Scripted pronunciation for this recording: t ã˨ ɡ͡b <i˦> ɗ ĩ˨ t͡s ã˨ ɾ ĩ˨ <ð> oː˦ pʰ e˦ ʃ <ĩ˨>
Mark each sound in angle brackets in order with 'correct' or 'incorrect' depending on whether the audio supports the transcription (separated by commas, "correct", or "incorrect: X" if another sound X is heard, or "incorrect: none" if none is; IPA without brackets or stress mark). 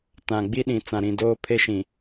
correct, incorrect: d, correct